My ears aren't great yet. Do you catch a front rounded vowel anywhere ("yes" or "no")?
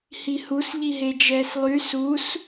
yes